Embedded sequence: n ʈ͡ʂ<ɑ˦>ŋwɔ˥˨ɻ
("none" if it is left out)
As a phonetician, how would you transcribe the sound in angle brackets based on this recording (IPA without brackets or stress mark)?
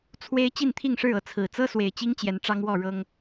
ɑ˦